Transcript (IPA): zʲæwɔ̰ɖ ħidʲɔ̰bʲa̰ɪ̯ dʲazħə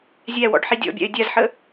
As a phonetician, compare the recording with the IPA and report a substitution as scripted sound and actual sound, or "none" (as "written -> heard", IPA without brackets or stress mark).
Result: none